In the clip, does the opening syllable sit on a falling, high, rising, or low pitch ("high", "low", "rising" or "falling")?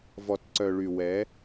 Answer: low